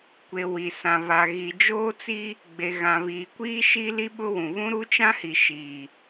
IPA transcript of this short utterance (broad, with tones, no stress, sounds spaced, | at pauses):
kʷ e˨ w i˨ s ã˨ β a˨ ɣ i˨ d͡ʒ oː˦ t͡s i˦ | ɡ͡b e˨ ɣ ã˨ β iː˨ kʷ iː˦ ʃ i˦ l i˦ ɓ ʊ˦ w ũ˨ β ũ˦ ɾ u˦ t͡ʃ ã˦ h i˨ ʃ i˨